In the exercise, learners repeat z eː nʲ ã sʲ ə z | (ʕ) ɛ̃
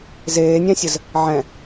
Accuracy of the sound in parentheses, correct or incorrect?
correct